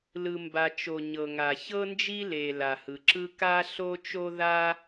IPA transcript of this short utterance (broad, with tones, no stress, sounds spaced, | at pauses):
l ɯ˩ m b a˩ t͡ʃ o˩ ɲ ɤ˩ ŋ a˩ ç ɤ˥ n d͡ʒ i˥ l e˩ l a˩ h ɯ˩ ǁ ɯ˥ k a˥ ɬ o˥ t͡ʃ o˥ ð a˥